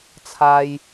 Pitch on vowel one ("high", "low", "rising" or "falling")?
high